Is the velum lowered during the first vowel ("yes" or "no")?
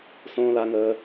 yes